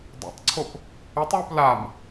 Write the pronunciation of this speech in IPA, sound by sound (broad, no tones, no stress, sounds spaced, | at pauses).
dˤ ɑ̰ tˤ ǀʰ o p | ɛ tˤ w u p l a m